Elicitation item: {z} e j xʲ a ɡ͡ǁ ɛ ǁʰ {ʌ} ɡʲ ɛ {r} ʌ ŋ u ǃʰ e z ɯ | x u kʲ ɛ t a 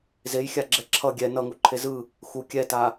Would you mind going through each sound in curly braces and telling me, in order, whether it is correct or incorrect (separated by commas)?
correct, correct, incorrect